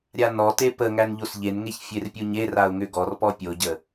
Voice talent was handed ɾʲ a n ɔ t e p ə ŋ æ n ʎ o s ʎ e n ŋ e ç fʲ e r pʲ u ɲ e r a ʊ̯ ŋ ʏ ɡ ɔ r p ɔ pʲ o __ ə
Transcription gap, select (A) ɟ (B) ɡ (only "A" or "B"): A